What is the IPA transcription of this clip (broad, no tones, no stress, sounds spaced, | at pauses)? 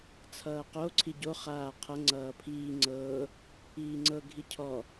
t͡sʰ ʌː q o ǀʰ i ɟ o χ aː qʰ ʌ ŋ͡ǀ ʌː pʰ iː ŋ͡ǀ ɤː | iː ŋ͡ǀ ɤ ɡʱ i cʰ ɔ